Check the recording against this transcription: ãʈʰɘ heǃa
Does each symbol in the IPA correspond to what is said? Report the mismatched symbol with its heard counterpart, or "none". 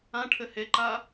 none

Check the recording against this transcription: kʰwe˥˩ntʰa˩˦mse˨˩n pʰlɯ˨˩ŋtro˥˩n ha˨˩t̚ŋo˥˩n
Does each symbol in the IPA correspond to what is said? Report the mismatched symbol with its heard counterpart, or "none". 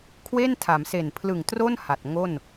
none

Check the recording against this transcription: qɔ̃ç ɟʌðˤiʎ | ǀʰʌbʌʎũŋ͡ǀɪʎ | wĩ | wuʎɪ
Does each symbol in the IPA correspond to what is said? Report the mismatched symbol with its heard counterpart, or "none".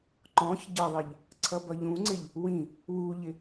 q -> ǃ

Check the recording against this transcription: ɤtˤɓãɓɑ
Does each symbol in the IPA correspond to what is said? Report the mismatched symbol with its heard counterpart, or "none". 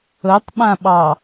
none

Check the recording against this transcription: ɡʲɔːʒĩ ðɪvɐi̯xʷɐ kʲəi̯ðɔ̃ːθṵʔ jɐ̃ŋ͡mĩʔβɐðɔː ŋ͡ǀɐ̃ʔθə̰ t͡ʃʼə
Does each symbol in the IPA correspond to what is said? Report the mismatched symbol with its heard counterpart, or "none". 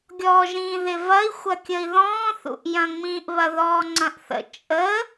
none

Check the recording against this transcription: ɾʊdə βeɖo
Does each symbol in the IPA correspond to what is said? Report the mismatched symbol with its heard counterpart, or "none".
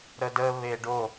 ʊ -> ə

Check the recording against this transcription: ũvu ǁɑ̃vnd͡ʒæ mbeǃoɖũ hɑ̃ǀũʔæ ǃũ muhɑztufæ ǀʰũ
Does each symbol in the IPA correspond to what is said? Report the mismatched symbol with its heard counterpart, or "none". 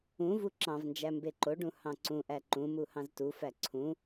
ɑ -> ɑ̃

